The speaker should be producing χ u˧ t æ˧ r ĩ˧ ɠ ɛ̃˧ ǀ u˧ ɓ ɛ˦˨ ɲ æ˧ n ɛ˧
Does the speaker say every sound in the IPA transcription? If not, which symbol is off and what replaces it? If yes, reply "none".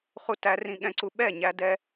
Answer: n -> d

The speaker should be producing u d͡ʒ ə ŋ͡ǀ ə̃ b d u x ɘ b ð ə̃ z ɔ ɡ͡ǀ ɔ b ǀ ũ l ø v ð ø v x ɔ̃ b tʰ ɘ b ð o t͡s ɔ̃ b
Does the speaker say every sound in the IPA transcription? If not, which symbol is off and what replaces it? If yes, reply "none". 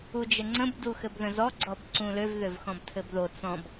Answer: none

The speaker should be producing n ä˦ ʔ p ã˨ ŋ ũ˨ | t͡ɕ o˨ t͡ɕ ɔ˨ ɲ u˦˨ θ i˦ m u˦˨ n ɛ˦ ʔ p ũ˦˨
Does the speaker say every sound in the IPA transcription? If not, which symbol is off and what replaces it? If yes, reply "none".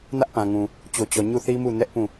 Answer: none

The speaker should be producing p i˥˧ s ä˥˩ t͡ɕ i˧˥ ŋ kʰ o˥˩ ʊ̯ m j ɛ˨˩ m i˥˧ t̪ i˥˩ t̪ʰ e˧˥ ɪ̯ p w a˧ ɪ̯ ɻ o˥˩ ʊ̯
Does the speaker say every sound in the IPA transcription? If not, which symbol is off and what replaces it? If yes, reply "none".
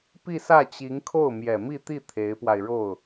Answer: none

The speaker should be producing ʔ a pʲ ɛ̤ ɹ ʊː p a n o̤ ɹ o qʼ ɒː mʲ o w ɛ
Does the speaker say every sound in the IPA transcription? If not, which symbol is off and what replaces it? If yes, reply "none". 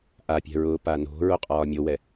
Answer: none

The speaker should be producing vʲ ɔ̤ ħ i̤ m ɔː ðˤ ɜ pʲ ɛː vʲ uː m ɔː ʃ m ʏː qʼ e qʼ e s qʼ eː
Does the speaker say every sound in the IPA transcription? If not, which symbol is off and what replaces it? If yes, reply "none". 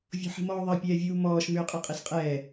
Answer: eː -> ɛː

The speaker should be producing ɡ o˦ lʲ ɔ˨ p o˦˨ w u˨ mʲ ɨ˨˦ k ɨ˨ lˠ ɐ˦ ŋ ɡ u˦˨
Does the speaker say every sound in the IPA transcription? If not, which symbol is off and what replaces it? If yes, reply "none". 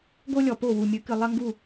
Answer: none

